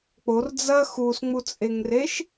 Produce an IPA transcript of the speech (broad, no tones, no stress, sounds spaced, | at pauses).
k͡p o r d͡z ɐ x u s ŋ͡m u t͡sʼ e ŋ r e ʃ